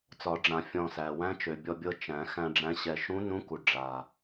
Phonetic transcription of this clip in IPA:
t͡s ɒ˨˩˦ ɖ͡ʐ ã˨˩˦ fʲ ɔ̃˧ s æ˨˩ w æ̃˧˥ t͡ʃ ø˨˩ bʲ ɔ˧ bʲ ɤ˧ t͡ʃ æ̃˨˩˦ x æ̃˧ ɖ͡ʐ æ̃˧˥ ɕ ɛ˧ ʃ ũ˧˥ n ũ˧˥ k u˨˩ ɖ͡ʐ a˨˩

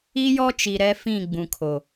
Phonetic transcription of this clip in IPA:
i˦ j ɔ˦ t͡ʃ i˨ ɾ ɛ˦ f ĩ˦˨ ɡ͡b ũ˨ kʰ o˨

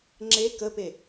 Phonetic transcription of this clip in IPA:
ŋ͡ǁ e k ə p e

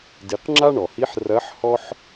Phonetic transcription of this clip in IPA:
d i˩˧ q ŋ͡ǁ a˥ ɳ ɔ˩ h i˧˥ ħ r ɐ˧˥ ħ h ɔ˥ ħ

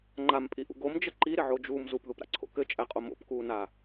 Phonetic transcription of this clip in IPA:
ŋ͡ǃ a m pʼ i ʔ ṵ ɡ o m d͡ʒ ə ǃ i ɾ ɪ ʕ o d͡ʒ uː m z u p ð u p ɾ a̰ ǀʰ o̰ k ɘ t͡ʃʼ æ qʼ o m o̰ p k uː n a

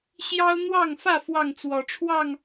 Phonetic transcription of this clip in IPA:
ɕ j ɑ˦ ʊ̯ n̪ w ɑ˥˨ ŋ f ä˥˨ f w ɑ˥˨ ŋ t͡s w ɔ˨˦ ʈ͡ʂʰ w ɑ˥˨ ŋ

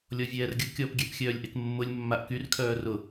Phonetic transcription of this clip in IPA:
lʲ ɔ vʲ ɛː r ɡʲ ʊ kʲ ɔ p ɡʲ ɛ p xʲ œː lʲ ʔ e k mː ʊ lʲ mː a ʔ k y r kʰ œː r ʊ

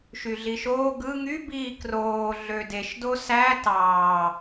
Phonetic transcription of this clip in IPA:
ʃ y ɮ i ʃ oː ɡ ɯ ŋ y b iː k r oː ɮ ø d e ʃ d o s æ t ɑː

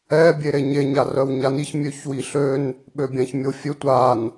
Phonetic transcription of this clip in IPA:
ɛ bʲ e ɾ e ɲ e ɲ a r œ w ɲ a n i ç mʲ ø ç w i ɬ ø n | ɓ ø bʲ ã ç mʲ o fʲ ø tʷ a n

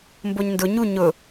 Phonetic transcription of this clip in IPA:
m b o ɲ n d ʊ ɲ u ɲ ʊ

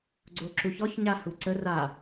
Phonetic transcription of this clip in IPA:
ɡ͡ǀ o ǁ u ç ɔ ç ɲ a h u ǀ ə r a

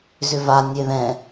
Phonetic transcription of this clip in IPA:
z ʏ v a nʲ e ð ɛ̃

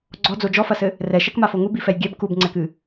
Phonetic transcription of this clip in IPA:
ɡ͡ǀ ɔ d͡z o d͡ʒ ɔ f ɐ s ɘ | r ɛ ʃ ɛ k m a f o ŋ u b i f ɛ j ɡʲ ɛ b k u b ŋ͡ǀ ɛ k ɨ

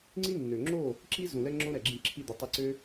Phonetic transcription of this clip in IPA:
ŋ͡ǀ i˦ nː ø˨ ŋ͡ǁ o˦˨ | ǁ i˦ z ũ˨ l ɛ˧ ŋ͡ǁ õ˦ ɾ ɛ˨ ɡ͡ǁ ĩ˧ ǁʰ i˧ d̪ ə˨˦ tˤ i˧ ǀ ø˦

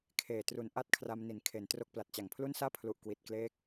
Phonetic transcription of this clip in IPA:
kʰ eː˨˩ t r u˧ n ʔ a˥˩ t̚ kʰ r a˧ m n i˩˦ n kʰ e˩˦ n t r o˦˥ k̚ p l a˨˩ t̚ t͡ɕ a˨˩ ŋ pʰ l u˥˩ n s aː˥˩ pʰ l u˨˩ ʔ k w i˨˩ t̚ k l eː˦˥ k̚

